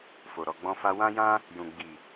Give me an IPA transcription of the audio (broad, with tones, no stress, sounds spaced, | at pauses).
f o˨ ɾ ɔ˨ ɡ͡b ɔ̃˧ f a˧ w ã˦ j ã˦ | j ũ˨ ɡ͡b i˨